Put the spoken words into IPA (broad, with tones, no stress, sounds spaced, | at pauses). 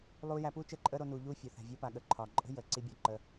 lˠ uː˧ j æ˧ p uː˦ t͡ʃ əː˦˨ ǃʼ əː˦ ɾ o˧ n uː˨ ʎ uː˦ fʲ o˨ θ æ̤˨ vʲ əː˧ p a˨ ɠ ə˨ ǃʰ ɒː˨ ǃʼ ə̤˦ j əː˨ ǀ i˧ bʲ ɒ˨ ǃ əː˧